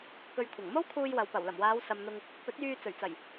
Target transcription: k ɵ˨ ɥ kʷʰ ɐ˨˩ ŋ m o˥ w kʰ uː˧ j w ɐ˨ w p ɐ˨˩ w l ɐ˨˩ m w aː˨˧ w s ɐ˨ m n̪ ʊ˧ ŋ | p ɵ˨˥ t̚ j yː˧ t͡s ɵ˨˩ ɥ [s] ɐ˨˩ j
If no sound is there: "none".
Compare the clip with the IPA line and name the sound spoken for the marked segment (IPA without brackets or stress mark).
t͡s